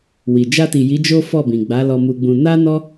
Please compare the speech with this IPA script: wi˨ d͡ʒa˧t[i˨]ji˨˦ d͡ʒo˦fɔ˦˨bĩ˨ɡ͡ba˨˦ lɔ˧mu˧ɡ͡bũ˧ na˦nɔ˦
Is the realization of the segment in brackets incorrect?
no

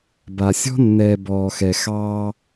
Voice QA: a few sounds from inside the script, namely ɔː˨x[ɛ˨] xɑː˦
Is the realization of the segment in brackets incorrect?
no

